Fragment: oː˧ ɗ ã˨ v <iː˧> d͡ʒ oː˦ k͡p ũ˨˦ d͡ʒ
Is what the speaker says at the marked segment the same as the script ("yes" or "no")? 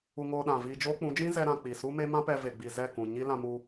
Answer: yes